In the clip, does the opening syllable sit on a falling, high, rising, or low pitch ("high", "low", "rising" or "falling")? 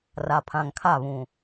low